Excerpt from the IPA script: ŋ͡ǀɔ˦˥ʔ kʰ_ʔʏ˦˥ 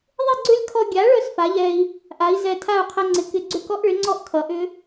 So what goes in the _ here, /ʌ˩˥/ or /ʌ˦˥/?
ʌ˩˥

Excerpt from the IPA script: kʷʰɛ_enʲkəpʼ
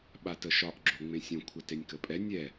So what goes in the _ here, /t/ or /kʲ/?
t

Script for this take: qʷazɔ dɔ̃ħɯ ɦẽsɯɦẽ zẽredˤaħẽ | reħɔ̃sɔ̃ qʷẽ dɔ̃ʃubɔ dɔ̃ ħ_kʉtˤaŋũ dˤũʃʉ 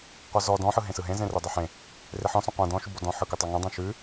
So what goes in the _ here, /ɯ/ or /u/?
ɯ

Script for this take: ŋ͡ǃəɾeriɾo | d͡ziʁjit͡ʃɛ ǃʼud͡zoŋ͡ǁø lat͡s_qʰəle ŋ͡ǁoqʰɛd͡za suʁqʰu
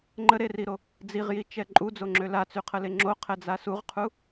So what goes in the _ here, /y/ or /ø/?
y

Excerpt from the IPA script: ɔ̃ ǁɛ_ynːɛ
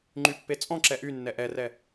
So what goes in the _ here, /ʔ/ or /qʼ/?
ʔ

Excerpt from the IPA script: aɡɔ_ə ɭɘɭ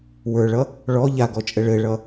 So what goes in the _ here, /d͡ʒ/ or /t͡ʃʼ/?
t͡ʃʼ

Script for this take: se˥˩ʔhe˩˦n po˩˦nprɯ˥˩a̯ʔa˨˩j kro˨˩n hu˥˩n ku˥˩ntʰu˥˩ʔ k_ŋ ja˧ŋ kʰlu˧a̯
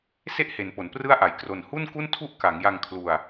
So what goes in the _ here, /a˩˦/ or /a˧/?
a˩˦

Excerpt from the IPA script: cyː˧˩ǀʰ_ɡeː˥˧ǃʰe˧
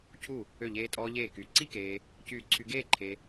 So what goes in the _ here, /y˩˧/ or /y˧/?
y˧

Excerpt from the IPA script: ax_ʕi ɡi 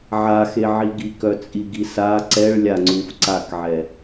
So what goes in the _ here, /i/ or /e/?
e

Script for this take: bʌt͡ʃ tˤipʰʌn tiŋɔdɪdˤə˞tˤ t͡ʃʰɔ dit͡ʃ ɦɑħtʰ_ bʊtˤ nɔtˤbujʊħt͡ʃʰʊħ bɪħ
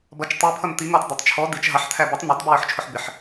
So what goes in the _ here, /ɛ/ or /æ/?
æ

